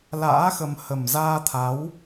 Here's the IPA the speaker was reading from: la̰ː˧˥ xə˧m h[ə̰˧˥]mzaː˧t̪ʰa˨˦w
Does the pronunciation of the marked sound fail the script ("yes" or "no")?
yes